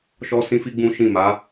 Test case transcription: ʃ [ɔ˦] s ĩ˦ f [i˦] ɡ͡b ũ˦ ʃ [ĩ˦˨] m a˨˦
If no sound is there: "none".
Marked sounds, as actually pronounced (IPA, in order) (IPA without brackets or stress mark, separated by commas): ɔ˦, i˦, ĩ˦˨